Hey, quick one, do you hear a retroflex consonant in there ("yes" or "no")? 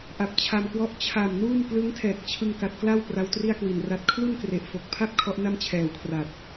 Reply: no